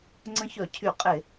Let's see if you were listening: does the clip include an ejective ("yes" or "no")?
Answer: yes